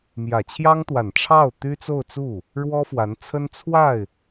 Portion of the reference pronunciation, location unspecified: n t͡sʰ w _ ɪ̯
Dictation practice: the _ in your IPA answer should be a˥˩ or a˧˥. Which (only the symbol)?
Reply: a˥˩